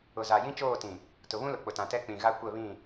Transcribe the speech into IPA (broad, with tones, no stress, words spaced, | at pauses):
ʊ˨za˨ jĩ˦t͡ʃoː˦˨tĩ˨ | tʊ˨βũ˦lʊ˨ k͡pʊ˨tã˨tɛ˦ k͡pĩ˨ɣa˦ kʷɛ˦˨βĩ˦˨